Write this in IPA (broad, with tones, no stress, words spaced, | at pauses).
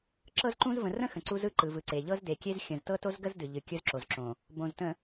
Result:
ǁɤ˦zǃũ˦z və̃˨rə̃˦ xə̃˨ǀu˦zɯ˦ ǃɯ˨vɯ˨ǀe˨ ʎɤ˦zde˨kʲe˦z xʲə̃˨z tɤ˦to˦zɡə˦z dɨ˨ʎɨ˨ kʲɯ˦z ǁo˨zǁõ˨ | bõ˨ztə̃˨